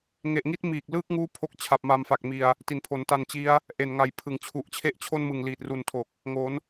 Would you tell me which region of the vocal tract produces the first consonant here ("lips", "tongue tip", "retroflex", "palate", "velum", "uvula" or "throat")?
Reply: velum